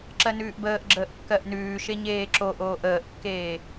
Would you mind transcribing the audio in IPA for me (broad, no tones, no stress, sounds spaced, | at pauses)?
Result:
ǁ ɜ n ʉː ʔ b əː ʔ ɡ͡ǁ əː ʔ kː ɜ ʔ n ʉː ʃ e ɲ eː ǁ o ʔ oː ʔ əː ʔ kː eː